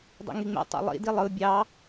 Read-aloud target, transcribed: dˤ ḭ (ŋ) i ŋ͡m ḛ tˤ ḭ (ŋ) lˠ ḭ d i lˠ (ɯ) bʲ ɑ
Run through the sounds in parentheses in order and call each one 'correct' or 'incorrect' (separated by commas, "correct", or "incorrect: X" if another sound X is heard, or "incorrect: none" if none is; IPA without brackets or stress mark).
correct, incorrect: none, correct